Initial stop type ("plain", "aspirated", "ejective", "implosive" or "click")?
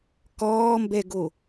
plain